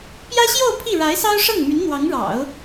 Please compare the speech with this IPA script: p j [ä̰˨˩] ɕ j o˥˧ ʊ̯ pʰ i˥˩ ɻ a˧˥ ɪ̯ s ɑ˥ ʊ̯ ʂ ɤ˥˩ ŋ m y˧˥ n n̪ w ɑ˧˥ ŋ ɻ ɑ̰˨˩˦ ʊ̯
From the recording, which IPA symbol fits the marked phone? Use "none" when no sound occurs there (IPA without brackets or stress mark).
ä˥